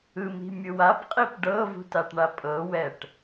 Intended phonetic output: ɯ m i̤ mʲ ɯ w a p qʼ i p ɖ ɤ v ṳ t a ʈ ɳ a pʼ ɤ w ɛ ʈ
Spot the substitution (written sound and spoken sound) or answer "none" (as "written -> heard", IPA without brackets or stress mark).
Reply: none